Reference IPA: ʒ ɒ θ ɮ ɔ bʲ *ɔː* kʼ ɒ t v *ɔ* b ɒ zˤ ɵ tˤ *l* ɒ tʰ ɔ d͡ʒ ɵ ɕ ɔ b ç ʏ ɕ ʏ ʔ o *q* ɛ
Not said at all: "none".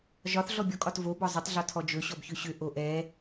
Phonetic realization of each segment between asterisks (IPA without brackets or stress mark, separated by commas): ɔ, o, ɮ, ʔ